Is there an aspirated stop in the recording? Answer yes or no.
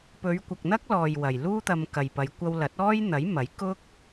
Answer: no